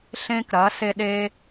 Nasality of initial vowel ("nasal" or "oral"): nasal